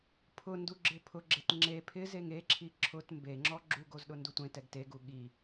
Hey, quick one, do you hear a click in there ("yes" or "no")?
yes